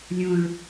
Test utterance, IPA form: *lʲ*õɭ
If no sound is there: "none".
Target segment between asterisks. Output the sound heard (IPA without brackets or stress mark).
lʲ